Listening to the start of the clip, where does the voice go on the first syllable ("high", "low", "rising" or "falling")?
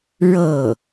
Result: falling